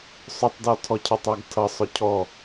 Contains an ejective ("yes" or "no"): no